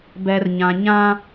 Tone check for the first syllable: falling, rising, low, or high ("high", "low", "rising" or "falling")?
low